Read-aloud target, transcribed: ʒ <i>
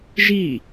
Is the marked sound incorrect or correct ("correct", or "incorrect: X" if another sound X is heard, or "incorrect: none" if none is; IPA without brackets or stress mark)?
correct